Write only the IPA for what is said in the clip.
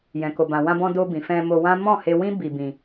jɛ̃˨ko˨bã˨ wã˧bɔ̃˧ do˧ bĩ˨fɛ̃˧mo˧wã˦ mɔ̃˦˨he˧wĩ˦ bi˧bĩ˧

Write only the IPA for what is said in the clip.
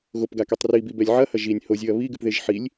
ɣopɡakɛtˤ ribibɛlʲ ʕɐhɐ ʒinʲ hozʲɨɐ̯ βiɡɨpðeʒ ħilʲ

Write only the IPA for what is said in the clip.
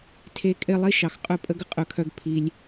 tʰe˧kʼɪ˧ lˠi˦ʃɑ˨x qʼœ˦pʼə˦ɡə˨ qʼœ˧kʰœ˦ɡ pʰi˧lʲ

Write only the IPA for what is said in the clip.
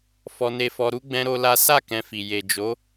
fɔ˧ne˧fɔ˧ɾu˦ ɡ͡bɛ̃˦ɾo˦la˦ sa˦˨ kɛ̃˧fi˨ je˨d͡ʒo˨˦

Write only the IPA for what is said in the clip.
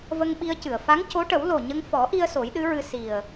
və˧ŋɓi˧ə̯cɨ˨˩˨ə̯ fa˧˥ŋco˧˥ʈə˨˩˦w lo˨˩ɲə˧ŋfɔ˨˩˦ʔi˧ə̯ so˨˩˦jɗɨ˧˥ɹɨ˧ si˨˩ə̯

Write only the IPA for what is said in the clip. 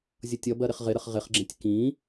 zʲʌtʲʌbɜ ɾɪχʁɪɾəχ ʁɪχɡ͡ǁɛ̃tʲ kĩ

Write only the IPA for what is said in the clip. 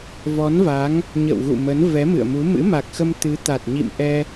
vɔ˨˦nva˨˦ŋ | ɲə̰˧˨wɣṵ˧˨mə˨˦n vɛ˨˦mɨ̰˧˨ə̯mu˨˦ mɨ̰˧˥ma˨˩k̚xə˧m t̪ɨ˨˦t̪a˨˩t̚ɲḭ˧˨mʔɛ˧

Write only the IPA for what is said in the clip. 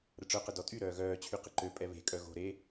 ɾəʈ͡ʂœqə dɔtʼyɾœː ɣœːt͡ɕʰy qəǃøpʼɛ βe̤ kʼœɣo̤ɾe

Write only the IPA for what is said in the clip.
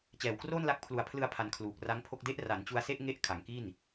t͡ɕɛː˨˩wkroː˥˩nla˦˥k̚ pʰlu˧a̯ pʰlɯ˧a̯pʰa˩˦n kʰluː˨˩k̚ra˦˥ŋpʰo˥˩k̚ de˦˥ʔra˩˦nt͡ɕu˧a̯se˥˩ʔ ŋe˦˥ʔ kʰa˩˦ŋki˥˩n

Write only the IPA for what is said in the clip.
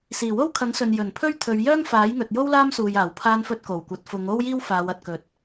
siː˨˩wo˥wkʰɐ˨˥ŋsɵ˨n jɵ˨˩npʰɵ˥ɥ t̪ʰɵ˨˧ɥ jœː˥ŋfaː˨˥jŋɵ˨t̚jo˥w laː˥msuː˨jaː˨˩w pʰaː˧nfɵ˧t̚ ko˨˩wkʷɐ˨˥t̚ fʊ˨˧ŋo˥w jiː˥wfaː˨˧wɐ˨t̚kɵ˨˥t̚

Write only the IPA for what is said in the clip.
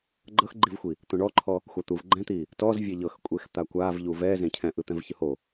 ɡ͡ǃɤxɡ͡ǃivxʷi | t̪õɳɔǃʰɔ | xʷat̪uv ɡ͡ǃɛ̃t̪i | tɔz vʲeʎɤx kʷʼext̪akʷavʎu vɛzẽ cʰɛ̃ʔɯt̪ɛ̃v çɯho

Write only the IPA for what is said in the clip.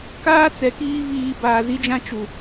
kaː˦ t͡sɛ˨kiː˦ viː˨ baː˨zi˦d͡ʒã˦ t͡ʃu˨

